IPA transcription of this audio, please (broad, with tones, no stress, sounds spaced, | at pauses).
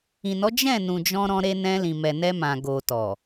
ĩ˨ n ɔ˨˦ d͡ʒ ɛ̃˦˨ n ũ˨ d͡ʒ ɔ̃˧ ɾ ɔ̃˧ ɾ e˧ n ɛ̃˧ l ĩ˨ m ɛ˨ n ɛ˧ m ã˨ ɡ o˨ t ɔ˨